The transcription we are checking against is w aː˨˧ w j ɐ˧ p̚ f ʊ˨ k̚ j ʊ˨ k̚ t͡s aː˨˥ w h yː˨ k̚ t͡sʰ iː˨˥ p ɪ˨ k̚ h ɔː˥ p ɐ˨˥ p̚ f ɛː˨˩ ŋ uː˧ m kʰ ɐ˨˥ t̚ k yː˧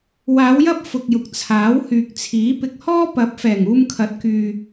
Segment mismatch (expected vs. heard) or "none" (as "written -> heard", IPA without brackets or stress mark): t͡s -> t͡sʰ